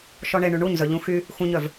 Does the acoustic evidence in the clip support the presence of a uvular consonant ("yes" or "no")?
no